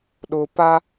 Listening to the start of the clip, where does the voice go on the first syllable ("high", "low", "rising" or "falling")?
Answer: low